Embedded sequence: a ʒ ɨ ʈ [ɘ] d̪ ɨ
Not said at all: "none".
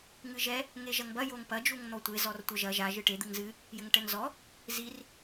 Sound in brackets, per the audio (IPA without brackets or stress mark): e